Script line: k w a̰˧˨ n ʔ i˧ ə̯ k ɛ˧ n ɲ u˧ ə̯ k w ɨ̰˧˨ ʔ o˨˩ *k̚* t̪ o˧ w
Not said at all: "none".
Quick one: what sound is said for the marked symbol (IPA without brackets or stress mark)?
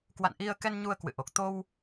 k̚